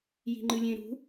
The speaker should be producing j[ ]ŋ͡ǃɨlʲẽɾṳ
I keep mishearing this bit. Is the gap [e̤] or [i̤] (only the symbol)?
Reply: i̤